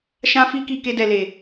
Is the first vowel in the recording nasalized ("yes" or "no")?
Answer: yes